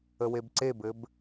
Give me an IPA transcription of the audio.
ə w e b ǀ e b ɘ b

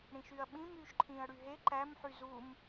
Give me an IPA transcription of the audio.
ɽ ĩ ʃ y ɐ̯ ɓ ĩ m yː ʃ ǃʰ ĩː ɐ̯ ɽ y ɦ e ǃ æ m ħ y z u m

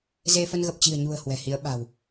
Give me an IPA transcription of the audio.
z e˧ f ə˧ n ɣ ə˨˩ p̚ t͡ɕ i̤˨˩ ə̯ ɲ ṳ˨˩ ə̯ h w ɛ̤˨˩ h i˨˦ ə̯ ɓ a̤˨˩ w

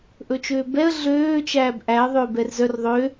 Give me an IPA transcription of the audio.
ʔ ɵ t͡ʃ øː b ɛ ə̯ ɮ øː t͡ʃ æː b ʔ æ ə̯ ðˤ øː b ɛ r z œ r ðˤ ø

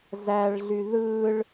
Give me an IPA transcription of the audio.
z æ ɭ ɮ y ð ɯ ɭ

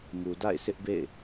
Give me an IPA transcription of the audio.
m u˨ d a̰˦˨ ɪ̯ sʰ ɪ˦ ʔ b ḛ˦˨ ɪ̯

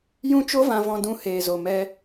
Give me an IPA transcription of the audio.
j ũ˦ t͡ʃ o˦ v ã˧ v ɔ̃˧ d ũ˧ h eː˨ z o˨ m ɛ˧

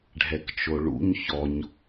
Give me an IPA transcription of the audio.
ɖʱ ɛ k t͡ʃ o ɭ ṵ ɲ ç ɔ ɲ

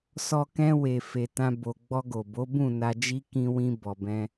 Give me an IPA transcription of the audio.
s ɔ˧ k ɛ̃˧ w e˨ f e˧ t ã˦ b o˧ ɡ͡b ɔ˧ ɡ o˨ b o˨˦ b ũ˦˨ n a˧ d͡ʒ i˦ k ĩ˧ w ĩ˧ b ɔ˨ b ɛ̃˧

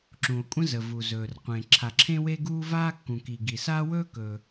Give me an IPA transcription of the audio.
ǁ ũ˩ o̯ kʷʼ ə̃˥ z ə˩ v u˩ z ɵː˩ r qʷ ẽ˩ ǁʰ a˩ ǁʰ ẽ˥ w e˥ ɡ uː˥ v aː˥ kː ũ˩ k i˩ ɡ i˩ s aː˥ w ɵː˥ k ɵː˩

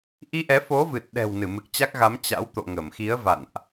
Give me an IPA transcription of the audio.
ʔ i˧ ʔ ɛ˨˦ f o˨˦ v ɨ˨˩ t̚ ɗ ɛ̤˨˩ w n ɨ˧˩ m ɨ˨˩ k̚ t͡ɕ a˦˥ k̚ ɣ a˨˦ m t͡ɕ a̰˧˥ w t̪ o̰˧˨ ŋ ə˧˩ m x i˨˦ ə̯ v a̰˧˨ n ʔ

